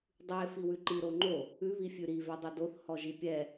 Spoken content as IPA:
dˤʉe̯ fiwʉǃi ɾoŋ͡ǃo | ʉ βifʲʉɾi vɛdˤʉdoθ hɔʒipʲɛ

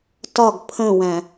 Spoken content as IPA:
tɒɡ pʰə̃wæ̃

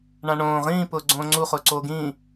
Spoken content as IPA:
ɳãɳõː ʁĩː pʊːɡ͡ǀõːŋ͡ǀu χʊːǀoːɡĩː

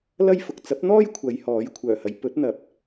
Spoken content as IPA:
lɐ˥jfʊ˨k̚ t͡sɐ˨˥p̚n̪ɔː˥j kʷʰɐ˨˧jhɔː˨˥j kʷʰœː˨˩hɐ˨˧j pɵ˨˥t̚n̪ɐ˨p̚

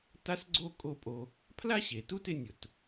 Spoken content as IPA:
ta˥sɡ͡ǀo˥˧ kʼo˥˧ pʼo˧ | pʰla˥ɕe˩˧tu˥˧tɪ˧ nʲʊ˧t

